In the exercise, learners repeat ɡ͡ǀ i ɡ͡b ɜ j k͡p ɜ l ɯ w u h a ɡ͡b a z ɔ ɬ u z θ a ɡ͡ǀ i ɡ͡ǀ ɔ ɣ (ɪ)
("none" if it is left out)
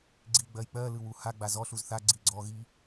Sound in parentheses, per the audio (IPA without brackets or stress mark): i